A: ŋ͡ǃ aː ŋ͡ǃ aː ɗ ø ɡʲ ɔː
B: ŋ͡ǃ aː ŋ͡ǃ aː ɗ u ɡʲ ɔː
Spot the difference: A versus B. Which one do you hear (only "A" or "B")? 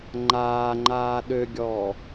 A